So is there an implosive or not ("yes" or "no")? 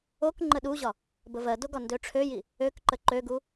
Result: yes